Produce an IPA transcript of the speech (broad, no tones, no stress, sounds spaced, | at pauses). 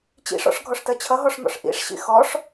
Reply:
t͡ɕ ḭ ʂ ɔ̰ ʂ ɡʱ ɔ ʂ t ɜ t͡ɕʰ ʌ ɦ ɔ ʂ n̪ ɔ̰ ʂ ʔ ḭ ʂ ɕ ḭ x ɔ ʂ